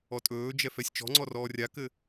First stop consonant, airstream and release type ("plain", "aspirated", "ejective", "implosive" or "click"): ejective